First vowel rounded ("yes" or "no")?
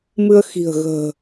no